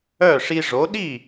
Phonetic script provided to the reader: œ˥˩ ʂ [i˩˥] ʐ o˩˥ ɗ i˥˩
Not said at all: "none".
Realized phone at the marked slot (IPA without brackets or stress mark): i˧